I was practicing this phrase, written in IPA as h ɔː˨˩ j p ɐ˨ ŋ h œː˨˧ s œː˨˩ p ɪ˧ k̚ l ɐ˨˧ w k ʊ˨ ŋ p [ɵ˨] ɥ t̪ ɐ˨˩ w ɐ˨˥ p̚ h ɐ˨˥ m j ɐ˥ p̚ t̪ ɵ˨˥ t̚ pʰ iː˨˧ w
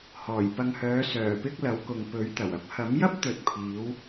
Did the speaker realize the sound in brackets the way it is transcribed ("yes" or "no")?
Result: no